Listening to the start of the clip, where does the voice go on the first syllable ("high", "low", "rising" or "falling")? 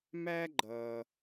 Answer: high